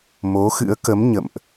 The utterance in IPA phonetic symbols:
m o˨˦ x ɨ̰˧˥ ə̯ k ə˨˦ m ɲ ə̰˧˨ m ʔ

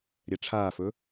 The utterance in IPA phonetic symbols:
ɾʲ ɛ ʈ͡ʂʰ aː f ɵ

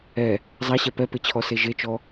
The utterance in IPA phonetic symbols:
ɛ | zˤ a ɕ ɛ p ɛ p e t͡ɕʰ ɔ s e ʒ e t͡ʃ ɔ

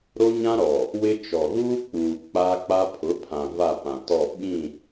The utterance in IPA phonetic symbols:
ɾ o˦ ɲ ã˦ ɾ ɔ˨ | w ɪ˦ t͡ʃ ɔ˨ ɣ uː˦ k͡p uː˨ k͡p aː˦ k͡p a˦ pʰ ʊ˨˦ pʰ ã˨ v a˦˨ p ã˨ t ɔ˦˨ ɓ ĩ˦˨

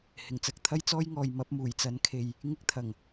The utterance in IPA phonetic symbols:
h ɪ˨˩ ŋ t͡s ɐ˧ k̚ t̪ʰ ɐ˥ j t͡s ɔː˥ j ŋ ɔː˨ j m ɐ˨˥ p̚ m uː˨˩ j t͡s ɐ˨˥ n kʰ e˨ j | ŋ ɪ˥ k̚ t̪ʰ ɐ˨˩ ŋ

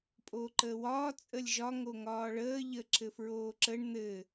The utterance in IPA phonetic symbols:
pʼ oː ǃ əː w ɒː t͡sʼ ə lʲ ʒ ɒ ŋ o ŋ ɒː ɭ əː ʎ ə ǁ ɘ f ɹ oː ǁ ə ɳ n̪ ɘ

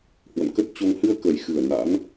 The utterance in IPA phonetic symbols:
h w ə̰˧˨ n k ə˦˥ t̚ t͡ɕ o˧ ŋ h ɨ˧ ə̯ k ə˨˩ j x ɨ˨˩ ə̯ n a̰˧˥ n

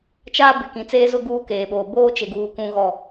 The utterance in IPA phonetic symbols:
t͡ʃ aː˦ b ɪ˨ k ĩ˨ t͡s eː˦ z ʊ˦ ɡ uː˦ k eː˨ ɓ oː˨ b oː˦ t͡ʃ e˨ ɡ uː˨ k ũ˦ ɣ ɔ˦

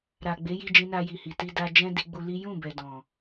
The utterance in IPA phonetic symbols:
ɾ a˨ ɡ͡b e˨˦ j i˧ d͡ʒ ĩ˧ n a˧ j i˨ h i˨ t i˧ d a˦ d͡ʒ ɛ̃˦ d i˧ ɡ͡b u˧ l i˦ j ũ˦˨ b ɛ˨ d ɔ̃˨

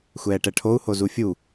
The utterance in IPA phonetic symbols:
xʷ ɛː ʈ ɛ ʈʰ o u̯ h o z u fʲ u

